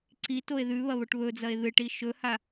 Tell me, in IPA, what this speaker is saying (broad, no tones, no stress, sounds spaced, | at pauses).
ǀ i t o e̯ ð ʉ β ɐ β o ʈ β ɵ d͡z ɐ e̯ ð ɨ ʈ i ʃ ɵ h a